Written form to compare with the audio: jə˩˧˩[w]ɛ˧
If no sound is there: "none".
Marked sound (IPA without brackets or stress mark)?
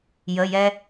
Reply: j